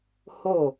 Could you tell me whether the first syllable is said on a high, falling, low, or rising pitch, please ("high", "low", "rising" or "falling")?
falling